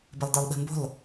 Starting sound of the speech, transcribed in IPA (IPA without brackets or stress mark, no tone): b